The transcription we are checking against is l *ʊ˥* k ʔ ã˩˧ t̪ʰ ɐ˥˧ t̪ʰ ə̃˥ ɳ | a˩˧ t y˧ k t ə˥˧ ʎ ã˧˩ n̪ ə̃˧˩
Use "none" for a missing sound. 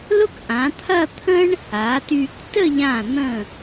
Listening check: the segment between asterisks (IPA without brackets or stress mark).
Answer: ʊ˥